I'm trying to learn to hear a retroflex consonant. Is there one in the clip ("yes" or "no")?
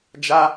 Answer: no